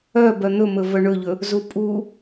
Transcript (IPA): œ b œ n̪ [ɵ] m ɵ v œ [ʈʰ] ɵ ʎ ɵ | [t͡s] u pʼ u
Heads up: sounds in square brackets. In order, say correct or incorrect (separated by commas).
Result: correct, incorrect, incorrect